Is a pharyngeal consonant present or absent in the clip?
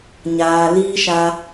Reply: absent